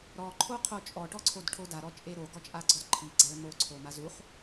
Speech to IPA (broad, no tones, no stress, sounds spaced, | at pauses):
ɾ ɔ ǃʰ o qʰ o t͡ʃʼ ɔ ʈ ɔ ǀʰ o d ʈʰ o d a ɾ ɔ t͡ʃʼ e ɾ o ɡ ɔ t͡ʃʼ a ɡ͡ǀ ɔ d ǃʰ i ɡ͡ǀ a ɭ m o ǀʰ o m a z u χ